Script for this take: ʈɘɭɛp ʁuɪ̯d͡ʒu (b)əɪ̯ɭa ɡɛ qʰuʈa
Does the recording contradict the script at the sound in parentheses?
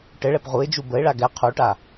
no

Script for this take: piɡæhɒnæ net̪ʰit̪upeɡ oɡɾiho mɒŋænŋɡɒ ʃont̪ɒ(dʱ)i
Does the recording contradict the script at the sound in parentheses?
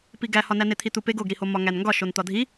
no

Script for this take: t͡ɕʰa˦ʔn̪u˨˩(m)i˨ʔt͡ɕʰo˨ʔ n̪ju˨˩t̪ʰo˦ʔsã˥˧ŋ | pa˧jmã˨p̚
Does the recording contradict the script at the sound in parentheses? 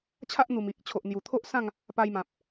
no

